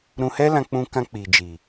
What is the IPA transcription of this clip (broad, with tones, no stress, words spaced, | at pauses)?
ɾũ˧hɛ˦lã˧ k͡pũ˧kã˧ k͡pi˨d͡ʒi˨